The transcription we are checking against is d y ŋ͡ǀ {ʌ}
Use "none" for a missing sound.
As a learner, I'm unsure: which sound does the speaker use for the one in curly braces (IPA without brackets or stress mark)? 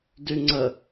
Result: ə